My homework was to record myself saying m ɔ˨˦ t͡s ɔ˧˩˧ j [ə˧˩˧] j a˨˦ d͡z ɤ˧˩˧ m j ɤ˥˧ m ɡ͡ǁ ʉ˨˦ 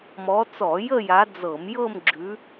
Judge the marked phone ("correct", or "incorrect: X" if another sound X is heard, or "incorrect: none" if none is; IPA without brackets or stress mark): incorrect: ə˥˧